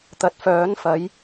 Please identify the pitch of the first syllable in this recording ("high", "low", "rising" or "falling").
rising